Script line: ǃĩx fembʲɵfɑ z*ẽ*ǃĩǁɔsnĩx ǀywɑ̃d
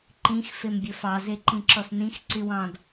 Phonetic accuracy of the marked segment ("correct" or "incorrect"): incorrect